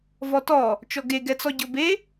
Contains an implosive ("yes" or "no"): no